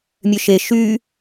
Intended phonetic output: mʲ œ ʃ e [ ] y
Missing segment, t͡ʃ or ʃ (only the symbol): ʃ